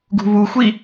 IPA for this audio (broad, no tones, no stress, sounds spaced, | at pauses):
ɡ ṳ β u xʷ i